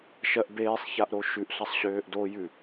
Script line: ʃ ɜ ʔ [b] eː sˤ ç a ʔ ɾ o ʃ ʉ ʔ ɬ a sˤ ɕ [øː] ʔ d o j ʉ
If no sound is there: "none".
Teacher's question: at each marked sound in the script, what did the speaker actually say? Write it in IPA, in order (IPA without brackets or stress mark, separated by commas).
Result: b, øː